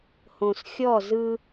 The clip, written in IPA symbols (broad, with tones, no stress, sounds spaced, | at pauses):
h õ˨ s xʲ ɔ˦˨ z ɯ˦